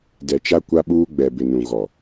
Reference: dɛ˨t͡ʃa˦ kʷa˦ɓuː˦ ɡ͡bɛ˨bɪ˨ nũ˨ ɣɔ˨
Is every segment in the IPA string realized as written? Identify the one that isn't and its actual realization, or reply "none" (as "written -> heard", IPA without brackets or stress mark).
none